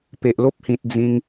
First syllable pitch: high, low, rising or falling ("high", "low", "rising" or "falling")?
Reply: low